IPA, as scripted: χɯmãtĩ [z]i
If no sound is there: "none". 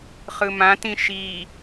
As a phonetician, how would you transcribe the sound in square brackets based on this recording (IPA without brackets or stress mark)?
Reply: ʃ